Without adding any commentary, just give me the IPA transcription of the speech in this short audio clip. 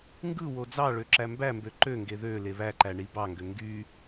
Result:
ŋɡɯwo d͡zɑɭø ǁæmbæmbø ǃøŋɡe ðø leβæǃæ ɳibɑŋɡø ŋɡy

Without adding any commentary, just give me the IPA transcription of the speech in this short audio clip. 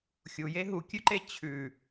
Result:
xʲuje ɦukʲʉǃe t͡ɕʰʉ

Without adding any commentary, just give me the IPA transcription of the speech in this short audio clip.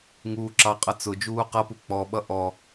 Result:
ŋuːǁɑqʼʌ t͡sʊ d͡ʒuːqʌpu k͡pɔɓʌ ʔɔ

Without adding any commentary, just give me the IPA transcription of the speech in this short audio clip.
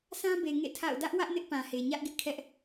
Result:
sã˦be˨ ŋḛ˦˨ tʰa̰˦˨ʊ̯ dä˦ʔwä˦ʔ nɪ˦ʔpã˨he˨ ɲä˦ʔɡɪ˦ʔkʰɛ˦ʔ

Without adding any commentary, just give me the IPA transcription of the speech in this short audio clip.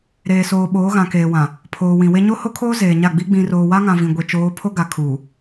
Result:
ɾeː˨soː˨ ɓoː˨˦ɣã˨keː˨wã˨ | pʰoː˨wĩ˨we˦ ɲo˦ho˦kʰoː˦ zeː˨ɲa˦˨ɡ͡bi˦ ɡ͡bĩ˨roː˨wa˦ŋã˨ vĩ˨ɡʷe˨t͡ʃoː˨˦ pʰo˦ɡa˨ kʰuː˨

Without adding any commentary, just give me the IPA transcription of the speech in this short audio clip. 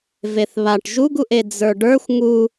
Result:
veθβaʈ ʒuɡuʔe d͡zə˞ɖə˞xʷ ŋu

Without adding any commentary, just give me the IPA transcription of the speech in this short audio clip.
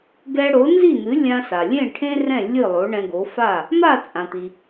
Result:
ɡɛ˧ɽo˩˥nzi˥˩n̪ɨ˩˥ lʲã˧sa˩lʲẽ˥˩ ʈʰẽ˥rɛ̃˥˩ lʲɨ˥˩lˠo˩˥ ɳɛ̃˧ɡo˩˥fa˥˩ | ma˥˩t͡sʼã˩t̪i˩

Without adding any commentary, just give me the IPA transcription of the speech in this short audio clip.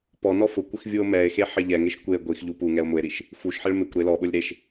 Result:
pɔ nɔfʊkʷɪx vʲuo̯mɛe̯xe ħɪʎɛŋeʃ kʷe ɡʷix ʎupuŋɛo̯ mʊe̯ɾiʃ | fuʃħɪɭ mɪkʷ ɾelɔɓʊlʲ ɾeʃ

